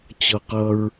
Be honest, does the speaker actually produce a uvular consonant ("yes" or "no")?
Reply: yes